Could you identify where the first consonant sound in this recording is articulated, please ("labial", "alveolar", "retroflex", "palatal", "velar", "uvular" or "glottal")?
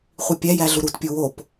uvular